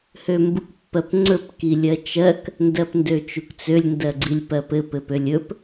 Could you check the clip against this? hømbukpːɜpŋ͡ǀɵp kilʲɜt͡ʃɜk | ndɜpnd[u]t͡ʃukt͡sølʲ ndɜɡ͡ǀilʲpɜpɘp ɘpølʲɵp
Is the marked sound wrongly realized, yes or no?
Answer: yes